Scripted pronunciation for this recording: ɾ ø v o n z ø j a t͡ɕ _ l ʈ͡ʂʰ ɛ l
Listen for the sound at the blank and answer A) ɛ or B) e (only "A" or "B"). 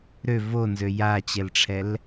A